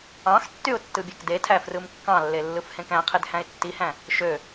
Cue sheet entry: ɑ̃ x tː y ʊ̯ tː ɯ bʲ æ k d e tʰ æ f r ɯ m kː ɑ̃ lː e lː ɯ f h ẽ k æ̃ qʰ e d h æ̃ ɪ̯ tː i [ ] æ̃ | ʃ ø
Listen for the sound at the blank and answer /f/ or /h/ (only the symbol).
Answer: h